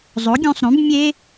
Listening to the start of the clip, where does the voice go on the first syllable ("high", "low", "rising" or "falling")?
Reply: rising